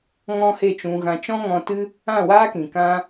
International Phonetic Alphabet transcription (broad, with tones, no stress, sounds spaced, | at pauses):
ŋ ɔ̃˦ h e˦˨ t͡ʃ ũ˧ ɣ ã˧ t͡ʃ ɔ̃˦ ŋ ɔ̃˧ t ɨ˦ | ã˦˨ w aː˦ k ĩ˨ k ã˦